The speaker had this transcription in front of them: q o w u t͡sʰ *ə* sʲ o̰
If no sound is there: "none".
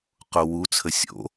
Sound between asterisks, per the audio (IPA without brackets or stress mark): ə